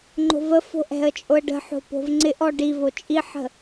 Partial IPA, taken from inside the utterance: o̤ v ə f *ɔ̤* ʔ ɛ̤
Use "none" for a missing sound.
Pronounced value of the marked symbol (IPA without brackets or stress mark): o̤